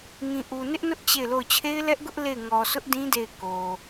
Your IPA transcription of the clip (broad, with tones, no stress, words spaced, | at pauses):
ŋĩ˨ʔu˨ nɪ˦ʔnʊ˦ʔ t͡ɕe˦˨ɪ̯lo˦˨ʊ̯ t͡ɕʰe˦ɪ̯lɛ˦ʔɡʊ˦ʔ le˦˨ɪ̯ ŋɔ˨sʰʊ˦ʔdĩ˦ de˦˨ɪ̯ko˨